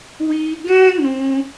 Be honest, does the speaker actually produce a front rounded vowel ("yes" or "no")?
no